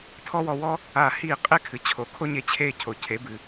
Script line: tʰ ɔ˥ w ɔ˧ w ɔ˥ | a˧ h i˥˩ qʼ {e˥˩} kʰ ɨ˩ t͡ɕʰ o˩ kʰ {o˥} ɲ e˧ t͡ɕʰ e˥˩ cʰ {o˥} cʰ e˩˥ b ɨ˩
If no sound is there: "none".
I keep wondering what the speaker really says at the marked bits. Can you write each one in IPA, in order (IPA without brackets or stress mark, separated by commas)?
e˥˩, o˥, o˩